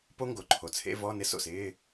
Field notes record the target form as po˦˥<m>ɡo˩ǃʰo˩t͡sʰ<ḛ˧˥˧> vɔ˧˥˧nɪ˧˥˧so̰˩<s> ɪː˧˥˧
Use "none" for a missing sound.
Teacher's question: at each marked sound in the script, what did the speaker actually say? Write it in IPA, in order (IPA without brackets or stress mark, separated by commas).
ŋ, ḛ˧˥˧, s